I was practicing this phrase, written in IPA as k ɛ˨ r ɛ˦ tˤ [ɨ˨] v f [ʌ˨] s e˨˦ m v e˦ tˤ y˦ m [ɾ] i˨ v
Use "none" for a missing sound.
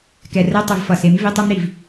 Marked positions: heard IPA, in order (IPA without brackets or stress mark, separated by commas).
ɨ˨, ʌ˨, ɾ